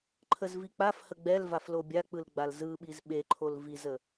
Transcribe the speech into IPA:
ǃʰ ə z v i k͡p a f h ə ɡ͡b ɛ l v a f l o bʲ a k͡p ɯ l ɡ͡b a l z ɯ ɓ i z ɓ e ǃʰ o l v i z ə

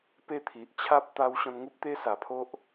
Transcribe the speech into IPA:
p e˧ t̪ʰ i˨ ʔ t͡ɕʰ a˦ p̚ t̪ a˦ w ɕ ɔ̃˧ n ŋ u˦ p̚ t̪ e˦ s a˨˩ pʰ o˦ ʔ

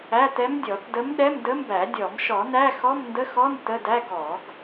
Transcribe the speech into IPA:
æ˧˥˧ t ɛ˧˥ m dʲ ɔ˨˩˦ t d ə˧˥ m ɗ ɛ˧˥˧ m d ə˧˥ m b æ˨˩˦ dʲ ɔ˨˩˦ m ʃ ɔ˨˩˦ n æ˧˥˧ x ɔ˧˥˧ m n d ə˧˥˧ x ɔ˧˥˧ n t ə˧˥˧ d æ˧˥˧ ɡ ɔ˨˩˦ ɡ

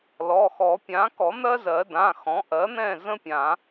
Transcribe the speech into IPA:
l ɔ˩˧˩ x ɔ˨˩˦ pʲ ã˩˥ k ɔ˨˩˦ n̪ ɜ˥ z ɜ˨˩˦ d ã˩˧˩ x ɔ̃˩˥ ʔ ɜ˩˥ n̪ ɛ̃˥˩ z ə̃˥ pʲ ã˨˩˦

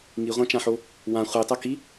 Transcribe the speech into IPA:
ŋ i ʁʷ ã t͡ʃ ã ħ o | w ã χʷ i tˤ ɐ k i

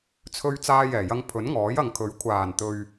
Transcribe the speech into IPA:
t͡sʰ ɵ˧ ɥ t͡s aː˧ j ɛː˨˩ j ɐ˧ ŋ pʰ ɵ˨˥ n ŋ ɔː˨˥ j ɐ˨ ŋ kʰ ɵ˨˥ ɥ kʷʰ aː˨˩ n t̪ ɵ˨ ɥ

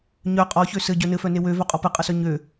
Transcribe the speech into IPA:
ɲ œ qʼ ɔ ç ø s ɘ ɟ œ n ɘ f œ n e w ø v œ qʼ ɔ p ɘ qʼ ə s œ ɲ ø

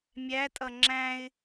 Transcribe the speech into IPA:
mʲ æ tʼ ʌ ŋ͡ǁ æ̃ ɪ̯

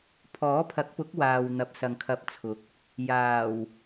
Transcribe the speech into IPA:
pʰ ɔː˨˥ pʰ ɐ˨˥ k̚ p ʊ˨˥ k̚ w aː˨ w n̪ ɐ˨˥ p̚ s ɐ˨ ŋ kʰ ɐ˧ p̚ t͡sʰ ʊ˨˥ k̚ | j aː˨˩ w

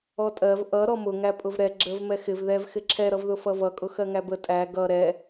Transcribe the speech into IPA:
ɔ tʼ ɜ v ʔ ʌ ɾ ɔ m ʊ ŋ æ pʼ ʊ v ɾ ɛ ɡ͡ǁ ə v m ɛ x ɪ v ð ɛ v x ɪ ǁʰ ɛ ɾ ʌ v ð ʊ f ʌ v ʌ kʼ ʊ x ɜ ŋ æ b ə tʼ æ ɡ ʌ ɾ ɛ

